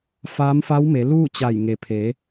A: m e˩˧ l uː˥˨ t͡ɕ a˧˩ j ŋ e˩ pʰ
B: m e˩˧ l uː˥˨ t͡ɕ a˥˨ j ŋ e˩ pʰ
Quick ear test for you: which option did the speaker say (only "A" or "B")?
A